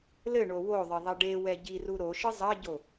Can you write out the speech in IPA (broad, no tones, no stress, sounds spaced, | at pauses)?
l ɘ ɳ o w o ðˤ ɘ ðˤ ɐ ɖ e w ɛ ɟ i r u ɾ o ʃ ɨ zˤ ɐ ɟ o